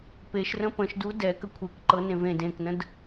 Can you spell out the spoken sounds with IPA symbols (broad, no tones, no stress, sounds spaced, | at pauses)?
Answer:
p e ʃ r ə̃ p ə̃ ʃ d u d ɛ k ə kʷʰ e k ǃ ɤ n ẽ v ẽ d ẽ k n ə̃ d